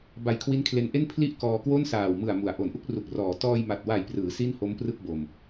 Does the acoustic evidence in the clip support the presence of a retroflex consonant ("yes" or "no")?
no